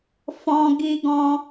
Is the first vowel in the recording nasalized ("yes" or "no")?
yes